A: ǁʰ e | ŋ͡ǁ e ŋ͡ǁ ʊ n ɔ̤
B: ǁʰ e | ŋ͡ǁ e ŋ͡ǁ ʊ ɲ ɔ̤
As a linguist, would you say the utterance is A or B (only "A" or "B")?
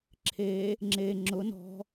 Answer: A